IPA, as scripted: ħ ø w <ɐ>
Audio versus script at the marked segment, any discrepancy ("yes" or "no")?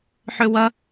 no